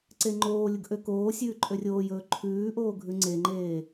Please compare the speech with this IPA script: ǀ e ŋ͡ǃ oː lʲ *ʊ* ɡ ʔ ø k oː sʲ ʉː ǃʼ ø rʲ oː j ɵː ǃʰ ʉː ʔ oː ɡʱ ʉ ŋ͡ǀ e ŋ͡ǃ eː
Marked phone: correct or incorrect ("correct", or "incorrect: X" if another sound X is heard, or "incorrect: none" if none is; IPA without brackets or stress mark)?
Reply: correct